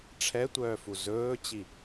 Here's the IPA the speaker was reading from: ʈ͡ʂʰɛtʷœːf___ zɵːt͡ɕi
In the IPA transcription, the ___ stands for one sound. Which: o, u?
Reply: u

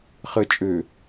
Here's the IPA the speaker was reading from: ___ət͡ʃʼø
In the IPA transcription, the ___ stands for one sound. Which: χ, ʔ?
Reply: χ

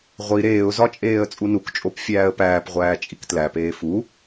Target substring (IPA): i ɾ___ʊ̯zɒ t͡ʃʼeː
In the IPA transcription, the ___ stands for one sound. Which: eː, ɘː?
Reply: eː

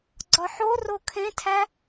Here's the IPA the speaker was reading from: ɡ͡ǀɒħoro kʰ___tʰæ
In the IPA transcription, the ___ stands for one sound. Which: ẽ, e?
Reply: ẽ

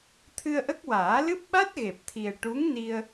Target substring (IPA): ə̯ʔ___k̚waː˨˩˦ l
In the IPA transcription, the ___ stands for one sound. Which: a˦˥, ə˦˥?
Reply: ə˦˥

